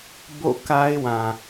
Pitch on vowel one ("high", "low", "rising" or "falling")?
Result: falling